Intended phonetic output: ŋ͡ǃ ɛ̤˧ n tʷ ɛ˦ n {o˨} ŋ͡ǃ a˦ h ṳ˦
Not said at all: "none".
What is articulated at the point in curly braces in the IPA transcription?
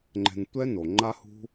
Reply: o˨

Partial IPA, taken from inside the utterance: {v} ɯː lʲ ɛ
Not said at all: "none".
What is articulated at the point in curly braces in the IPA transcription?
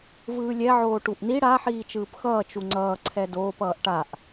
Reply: v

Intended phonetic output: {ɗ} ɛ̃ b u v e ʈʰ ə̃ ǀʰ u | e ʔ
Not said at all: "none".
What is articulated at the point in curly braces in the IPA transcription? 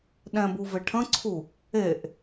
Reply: ɗ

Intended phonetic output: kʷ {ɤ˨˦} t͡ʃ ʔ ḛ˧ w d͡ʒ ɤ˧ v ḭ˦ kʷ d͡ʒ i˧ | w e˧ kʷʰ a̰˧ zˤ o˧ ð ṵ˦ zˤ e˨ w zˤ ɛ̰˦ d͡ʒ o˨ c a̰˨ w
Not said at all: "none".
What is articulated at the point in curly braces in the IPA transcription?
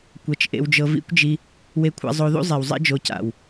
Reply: ɤ˨˦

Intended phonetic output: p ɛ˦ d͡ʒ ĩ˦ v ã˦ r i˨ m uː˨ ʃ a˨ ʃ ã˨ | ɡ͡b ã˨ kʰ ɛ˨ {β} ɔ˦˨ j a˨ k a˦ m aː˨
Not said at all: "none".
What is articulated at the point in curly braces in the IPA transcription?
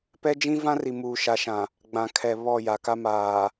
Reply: β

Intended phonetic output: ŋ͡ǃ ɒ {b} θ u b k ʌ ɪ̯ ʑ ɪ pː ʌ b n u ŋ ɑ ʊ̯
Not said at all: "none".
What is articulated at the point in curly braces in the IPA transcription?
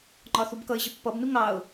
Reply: none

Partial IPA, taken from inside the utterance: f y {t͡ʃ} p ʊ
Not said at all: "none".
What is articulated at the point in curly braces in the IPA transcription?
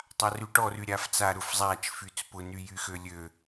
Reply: t͡s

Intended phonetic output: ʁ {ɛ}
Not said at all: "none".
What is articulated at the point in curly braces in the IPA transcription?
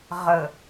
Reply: ə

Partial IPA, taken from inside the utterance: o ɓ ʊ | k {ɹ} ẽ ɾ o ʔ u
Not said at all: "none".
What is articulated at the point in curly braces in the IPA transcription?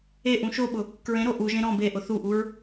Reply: ɹ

